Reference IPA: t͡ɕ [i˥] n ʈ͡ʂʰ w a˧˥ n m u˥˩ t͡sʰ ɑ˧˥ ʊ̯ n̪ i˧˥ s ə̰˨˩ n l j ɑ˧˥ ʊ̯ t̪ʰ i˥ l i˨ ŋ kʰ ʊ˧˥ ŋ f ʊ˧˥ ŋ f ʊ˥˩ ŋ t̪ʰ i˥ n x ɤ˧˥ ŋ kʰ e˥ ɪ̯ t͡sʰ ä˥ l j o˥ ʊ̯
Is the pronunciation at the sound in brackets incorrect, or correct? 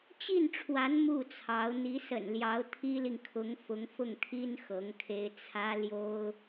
incorrect